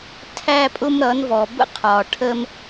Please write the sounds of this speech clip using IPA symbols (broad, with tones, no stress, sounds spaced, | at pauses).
tʰ æ˦ pʼ ʊ˦ m ɾ ʌ˨˦ n v ɔ˨ b ə̰˦ qʰ ɒ˨ ʈʰ ə˦ m